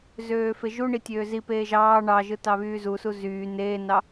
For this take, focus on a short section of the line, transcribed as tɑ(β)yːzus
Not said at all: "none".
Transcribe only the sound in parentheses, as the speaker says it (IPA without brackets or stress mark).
β